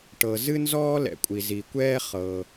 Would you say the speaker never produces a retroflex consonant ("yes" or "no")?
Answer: no